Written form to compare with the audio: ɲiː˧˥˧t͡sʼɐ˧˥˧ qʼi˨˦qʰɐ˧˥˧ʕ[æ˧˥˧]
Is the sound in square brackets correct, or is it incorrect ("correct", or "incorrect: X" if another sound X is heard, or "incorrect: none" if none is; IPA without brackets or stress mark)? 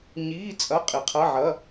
incorrect: ɐ˧˥˧